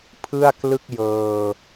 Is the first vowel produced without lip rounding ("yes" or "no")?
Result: yes